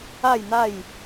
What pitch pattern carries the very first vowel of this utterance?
falling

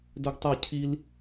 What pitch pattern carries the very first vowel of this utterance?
high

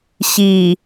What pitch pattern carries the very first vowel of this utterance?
low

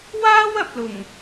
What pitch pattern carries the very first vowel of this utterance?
high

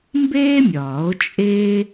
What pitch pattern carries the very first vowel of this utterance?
high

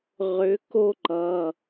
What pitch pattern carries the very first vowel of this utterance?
rising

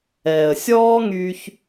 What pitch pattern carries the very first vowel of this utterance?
low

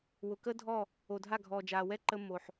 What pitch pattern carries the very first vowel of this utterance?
low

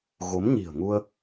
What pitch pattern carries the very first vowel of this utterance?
rising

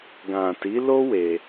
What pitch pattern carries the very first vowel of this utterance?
low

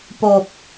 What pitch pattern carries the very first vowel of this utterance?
low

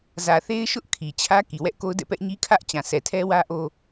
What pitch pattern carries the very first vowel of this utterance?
low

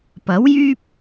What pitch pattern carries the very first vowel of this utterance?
rising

